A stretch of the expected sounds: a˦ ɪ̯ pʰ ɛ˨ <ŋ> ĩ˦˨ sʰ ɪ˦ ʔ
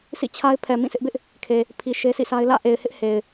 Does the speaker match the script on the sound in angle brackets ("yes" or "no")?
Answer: no